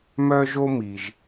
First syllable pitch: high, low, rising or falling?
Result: high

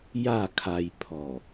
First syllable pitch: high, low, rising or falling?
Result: falling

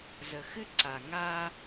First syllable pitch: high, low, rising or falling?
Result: low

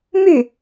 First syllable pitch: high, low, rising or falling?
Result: falling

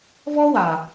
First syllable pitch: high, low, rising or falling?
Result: high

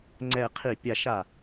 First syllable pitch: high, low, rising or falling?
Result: falling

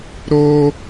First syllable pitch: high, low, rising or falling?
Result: high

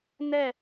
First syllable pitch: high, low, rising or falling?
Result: falling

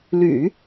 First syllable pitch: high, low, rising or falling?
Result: low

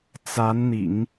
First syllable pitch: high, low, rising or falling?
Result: rising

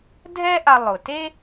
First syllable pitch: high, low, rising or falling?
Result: high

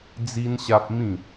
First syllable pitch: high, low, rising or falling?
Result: high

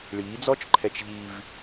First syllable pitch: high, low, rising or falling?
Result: rising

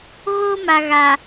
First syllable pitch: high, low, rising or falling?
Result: high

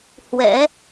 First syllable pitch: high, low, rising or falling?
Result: rising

